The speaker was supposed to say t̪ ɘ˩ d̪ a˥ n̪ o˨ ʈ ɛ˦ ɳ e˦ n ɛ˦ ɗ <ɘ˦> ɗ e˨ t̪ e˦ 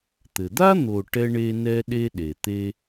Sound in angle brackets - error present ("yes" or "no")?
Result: yes